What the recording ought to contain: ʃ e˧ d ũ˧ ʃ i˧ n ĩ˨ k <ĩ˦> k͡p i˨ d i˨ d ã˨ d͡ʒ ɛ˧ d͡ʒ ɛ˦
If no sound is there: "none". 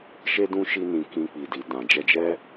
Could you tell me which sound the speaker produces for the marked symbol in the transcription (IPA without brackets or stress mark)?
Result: ĩ˧